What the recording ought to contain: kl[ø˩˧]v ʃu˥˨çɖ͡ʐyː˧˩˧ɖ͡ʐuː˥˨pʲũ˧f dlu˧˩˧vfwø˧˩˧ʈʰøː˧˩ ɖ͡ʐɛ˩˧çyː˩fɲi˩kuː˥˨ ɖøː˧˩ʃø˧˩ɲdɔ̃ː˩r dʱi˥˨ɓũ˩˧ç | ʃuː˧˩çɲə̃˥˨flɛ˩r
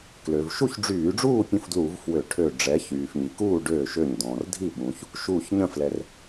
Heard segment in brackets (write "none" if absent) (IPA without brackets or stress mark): ø˩